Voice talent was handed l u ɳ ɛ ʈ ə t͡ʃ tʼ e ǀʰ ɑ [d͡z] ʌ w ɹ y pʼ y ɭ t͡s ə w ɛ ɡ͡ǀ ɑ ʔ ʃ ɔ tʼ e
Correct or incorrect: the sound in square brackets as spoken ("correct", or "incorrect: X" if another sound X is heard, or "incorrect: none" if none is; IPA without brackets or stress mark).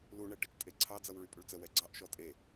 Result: correct